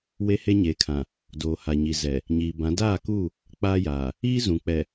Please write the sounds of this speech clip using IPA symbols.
w e˦ h e˦ ɲ e˨˦ kʰ ã˨ | d oː˨ h a˨ ɲ i˨ z ɛ˨ | ɲ iː˨ b ã˨˦ d aː˦˨ k uː˦˨ | k͡p aː˦ j aː˨ | iː˦ z ũ˨ k͡p ɛ˨

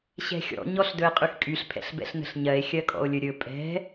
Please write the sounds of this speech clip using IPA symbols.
ɕ ɛ̤ xʲ ɔ̰ ɲ ɔ ɬ d ɵ e̯ qʼ y x kʼ y ɬ pʰ ɛ̰ ɬ b ɛ̰ ɬ n ə̤ ɬ ɲ ɜ e̯ xʲ ɜ kʼ ɔ̰ o̯ lʲ ɵ ɾʲ ɵ pʼ ɛ̤

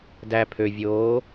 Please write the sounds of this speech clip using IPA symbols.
d æ pʰ ø vʲ oː

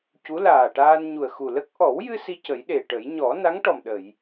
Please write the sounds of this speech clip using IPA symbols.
c u˧˥ l aː˨˩ ʈ aː˧ n ɲ u˨˩ ə̯ x u˨˩ l ə˦˥ k̚ ʔ ɔ˨˩˦ w j ɨ˧ s i˧ c ə˨˩˦ j ɗ e˨˩ ʈ ə˨˩˦ j ɲ ɔ˨˩˦ n a˧˥ ŋ ʈ ɔ˨˩ m ɗ ə˨˩˨ j

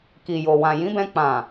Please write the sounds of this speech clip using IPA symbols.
k i˨ j o˨ w ã˨ j ĩ˨˦ b ɛ̃˧ k͡p ã˨

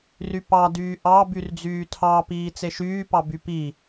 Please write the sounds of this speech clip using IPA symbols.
r y p ɑ d yː ʔ ɑ b y r d͡z yː tʰ ɑ p iː t͡s e ʃ yː p ɑ b y p i

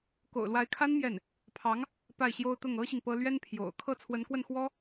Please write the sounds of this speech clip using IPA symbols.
k o̰˨˩ ʊ̯ l w a˧˥ ɪ̯ kʰ a˥ n m j ɛ˥˩ n | pʰ ɑ˧˥ ŋ | p a˥˩ ɪ̯ ɕ j o˥ ʊ̯ t̪ ʊ˥˩ ŋ ɤ˥ ɕ i˨ ŋ p ɤ˥ l ɥ ɛ˥ n pʰ j o̰˨˩ ʊ̯ kʰ ɤ˥˩ t͡sʰ w ə˧˥ n k w ə˥˩ n x w ɔ˥

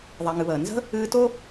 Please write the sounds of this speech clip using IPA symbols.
ðˤ ɛ˨ ŋ ɨ˨ β əː˩ n z ə̤˥ | ɨː˦ t o˥

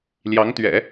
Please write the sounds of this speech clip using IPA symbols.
l j ɑ˧˥ ŋ t̪ ɥ ɛ̰˨˩˦

